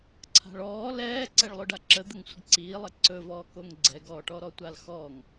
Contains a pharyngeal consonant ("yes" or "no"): no